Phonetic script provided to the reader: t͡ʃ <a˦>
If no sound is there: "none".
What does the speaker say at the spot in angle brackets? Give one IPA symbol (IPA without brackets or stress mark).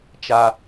a˦